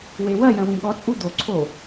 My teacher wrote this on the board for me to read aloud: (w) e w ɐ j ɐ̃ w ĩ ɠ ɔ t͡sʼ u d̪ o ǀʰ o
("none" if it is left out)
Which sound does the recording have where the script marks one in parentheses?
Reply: w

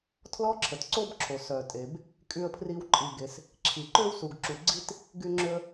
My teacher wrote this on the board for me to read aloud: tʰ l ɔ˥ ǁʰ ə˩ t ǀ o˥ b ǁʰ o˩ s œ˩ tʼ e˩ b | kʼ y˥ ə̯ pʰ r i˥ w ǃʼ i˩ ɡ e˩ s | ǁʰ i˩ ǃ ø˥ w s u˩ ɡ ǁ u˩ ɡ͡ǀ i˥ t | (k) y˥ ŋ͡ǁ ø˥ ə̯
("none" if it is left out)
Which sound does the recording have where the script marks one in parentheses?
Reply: ɡ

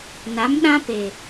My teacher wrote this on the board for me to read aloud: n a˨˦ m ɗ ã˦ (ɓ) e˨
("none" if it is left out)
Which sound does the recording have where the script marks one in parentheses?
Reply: p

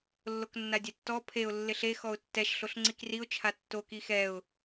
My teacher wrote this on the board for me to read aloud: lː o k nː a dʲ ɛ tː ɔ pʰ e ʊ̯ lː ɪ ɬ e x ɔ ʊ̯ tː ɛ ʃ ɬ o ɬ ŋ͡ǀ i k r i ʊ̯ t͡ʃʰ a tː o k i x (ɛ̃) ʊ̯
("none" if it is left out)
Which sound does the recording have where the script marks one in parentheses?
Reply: ɛ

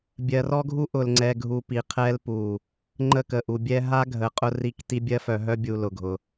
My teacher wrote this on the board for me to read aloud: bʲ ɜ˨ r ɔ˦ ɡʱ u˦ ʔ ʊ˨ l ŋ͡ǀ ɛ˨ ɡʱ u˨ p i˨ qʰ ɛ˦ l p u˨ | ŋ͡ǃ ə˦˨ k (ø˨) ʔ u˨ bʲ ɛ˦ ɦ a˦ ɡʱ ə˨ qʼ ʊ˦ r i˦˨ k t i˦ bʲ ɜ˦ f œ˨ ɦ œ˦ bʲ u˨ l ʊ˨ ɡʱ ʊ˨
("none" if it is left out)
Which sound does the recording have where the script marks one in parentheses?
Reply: ə˨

